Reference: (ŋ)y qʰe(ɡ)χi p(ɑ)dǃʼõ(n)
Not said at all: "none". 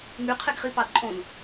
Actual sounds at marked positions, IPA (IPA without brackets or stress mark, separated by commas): ŋ, ɡ, ɑ, n